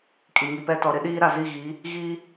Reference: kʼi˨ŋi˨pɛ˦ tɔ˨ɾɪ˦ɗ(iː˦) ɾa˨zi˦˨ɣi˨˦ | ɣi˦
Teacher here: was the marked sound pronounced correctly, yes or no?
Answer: yes